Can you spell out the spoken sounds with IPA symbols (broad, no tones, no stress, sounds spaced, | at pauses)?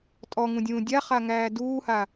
tʼ ɔ ŋ ũ dʲ ũː dʲ a χ a ŋ æː d uː h a